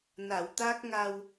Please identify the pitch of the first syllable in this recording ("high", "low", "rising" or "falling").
low